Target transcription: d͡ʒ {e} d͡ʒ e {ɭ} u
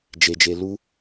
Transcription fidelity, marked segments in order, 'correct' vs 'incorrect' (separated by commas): correct, incorrect